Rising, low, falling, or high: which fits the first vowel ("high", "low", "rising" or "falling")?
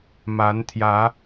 rising